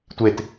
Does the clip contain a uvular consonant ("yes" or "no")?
no